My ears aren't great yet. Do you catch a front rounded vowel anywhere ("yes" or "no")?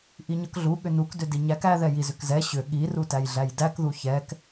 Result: yes